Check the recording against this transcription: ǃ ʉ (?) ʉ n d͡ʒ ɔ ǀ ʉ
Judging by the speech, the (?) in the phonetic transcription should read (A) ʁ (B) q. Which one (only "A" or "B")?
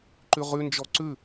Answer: A